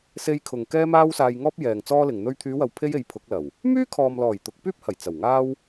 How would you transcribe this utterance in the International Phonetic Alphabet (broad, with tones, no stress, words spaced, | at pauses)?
se˧jkʰʊ˨ŋ kɛː˥maː˥wsaː˧j ŋɔː˥p̚ jɛː˨ŋ t͡sɔː˥lɪ˨ŋn̪ɵ˥ɥ t̪ʰyː˨˧wɐ˨w pʰe˥je˨˥jpʰʊ˨˥k̚lɐ˨˩w | myː˥kʰɔː˨mlɔː˨˩j t̪ʊ˨˥k̚pyː˥p̚hɐ˨˩j t͡sɐ˨˩wŋaː˥w